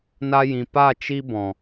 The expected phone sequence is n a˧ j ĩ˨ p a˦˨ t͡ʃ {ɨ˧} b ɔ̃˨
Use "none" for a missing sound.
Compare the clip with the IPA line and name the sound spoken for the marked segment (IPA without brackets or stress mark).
i˧